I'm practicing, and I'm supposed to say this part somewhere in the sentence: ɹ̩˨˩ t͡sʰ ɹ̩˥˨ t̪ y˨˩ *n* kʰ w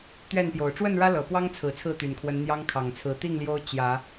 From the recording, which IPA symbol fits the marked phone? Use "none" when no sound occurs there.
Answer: n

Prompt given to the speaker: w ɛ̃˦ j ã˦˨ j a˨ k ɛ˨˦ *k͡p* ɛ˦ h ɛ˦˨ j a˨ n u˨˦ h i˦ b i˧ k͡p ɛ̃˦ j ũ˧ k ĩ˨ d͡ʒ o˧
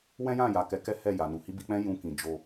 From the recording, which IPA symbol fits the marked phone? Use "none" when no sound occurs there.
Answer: k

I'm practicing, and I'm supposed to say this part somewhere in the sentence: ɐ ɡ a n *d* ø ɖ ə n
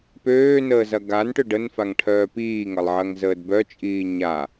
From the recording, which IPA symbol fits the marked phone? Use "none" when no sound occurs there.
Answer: ʈ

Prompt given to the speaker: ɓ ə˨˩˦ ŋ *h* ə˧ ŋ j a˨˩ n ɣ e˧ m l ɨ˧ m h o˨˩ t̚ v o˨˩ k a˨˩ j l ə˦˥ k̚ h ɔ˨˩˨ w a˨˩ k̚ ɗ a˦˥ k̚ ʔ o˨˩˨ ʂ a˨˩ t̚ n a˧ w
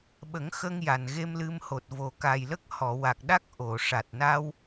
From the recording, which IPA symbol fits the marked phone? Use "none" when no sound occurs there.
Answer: x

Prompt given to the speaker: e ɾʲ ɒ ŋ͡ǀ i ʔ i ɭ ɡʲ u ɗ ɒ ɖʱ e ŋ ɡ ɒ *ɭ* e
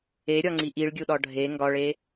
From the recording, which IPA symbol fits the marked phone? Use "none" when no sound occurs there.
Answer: ɭ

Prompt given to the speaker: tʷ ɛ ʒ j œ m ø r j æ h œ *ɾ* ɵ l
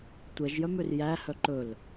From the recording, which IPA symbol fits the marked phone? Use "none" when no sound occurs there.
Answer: ǃ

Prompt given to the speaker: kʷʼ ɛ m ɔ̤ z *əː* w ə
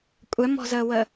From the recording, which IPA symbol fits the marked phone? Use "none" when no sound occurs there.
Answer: əː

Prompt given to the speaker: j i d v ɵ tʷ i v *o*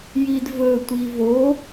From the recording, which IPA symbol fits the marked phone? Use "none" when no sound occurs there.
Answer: o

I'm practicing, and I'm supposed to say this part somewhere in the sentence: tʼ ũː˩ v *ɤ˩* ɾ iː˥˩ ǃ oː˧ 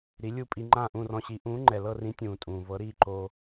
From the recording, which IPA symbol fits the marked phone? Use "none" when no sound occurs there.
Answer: ɤ˩˥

